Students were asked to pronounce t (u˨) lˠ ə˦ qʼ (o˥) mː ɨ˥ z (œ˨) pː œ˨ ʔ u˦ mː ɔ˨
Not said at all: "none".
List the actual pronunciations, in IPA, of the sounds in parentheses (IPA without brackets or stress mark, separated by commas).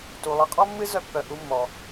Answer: u˨, ɔ˥, œ˦